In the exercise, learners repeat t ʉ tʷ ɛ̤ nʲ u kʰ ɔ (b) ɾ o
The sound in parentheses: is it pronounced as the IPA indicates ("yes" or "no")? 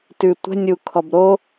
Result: yes